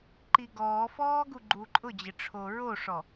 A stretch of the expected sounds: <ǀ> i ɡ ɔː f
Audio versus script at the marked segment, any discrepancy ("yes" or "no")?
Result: yes